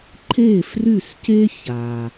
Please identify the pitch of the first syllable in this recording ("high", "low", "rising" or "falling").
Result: falling